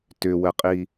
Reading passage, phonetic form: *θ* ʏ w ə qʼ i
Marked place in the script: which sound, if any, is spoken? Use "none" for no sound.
t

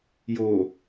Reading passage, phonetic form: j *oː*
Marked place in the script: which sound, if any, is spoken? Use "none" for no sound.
oː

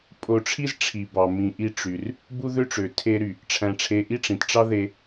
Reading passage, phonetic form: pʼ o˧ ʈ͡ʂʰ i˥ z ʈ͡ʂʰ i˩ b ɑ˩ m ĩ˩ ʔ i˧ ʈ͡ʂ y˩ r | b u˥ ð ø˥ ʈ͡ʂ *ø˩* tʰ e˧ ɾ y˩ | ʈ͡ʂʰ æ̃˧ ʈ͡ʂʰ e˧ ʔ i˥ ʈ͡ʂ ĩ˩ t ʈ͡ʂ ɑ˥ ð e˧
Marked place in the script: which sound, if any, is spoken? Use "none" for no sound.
ø˩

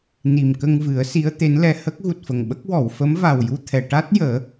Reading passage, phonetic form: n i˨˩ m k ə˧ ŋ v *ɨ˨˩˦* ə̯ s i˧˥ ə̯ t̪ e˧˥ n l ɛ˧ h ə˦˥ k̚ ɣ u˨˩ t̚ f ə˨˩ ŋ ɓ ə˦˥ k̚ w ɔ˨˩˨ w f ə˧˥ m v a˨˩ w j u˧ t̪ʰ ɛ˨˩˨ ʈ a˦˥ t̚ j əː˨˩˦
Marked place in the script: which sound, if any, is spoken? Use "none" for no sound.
ɨ˨˩˦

